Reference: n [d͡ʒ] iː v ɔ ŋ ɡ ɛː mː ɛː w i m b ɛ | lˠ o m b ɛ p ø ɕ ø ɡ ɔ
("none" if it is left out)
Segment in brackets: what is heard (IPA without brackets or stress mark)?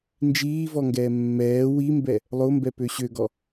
d͡ʒ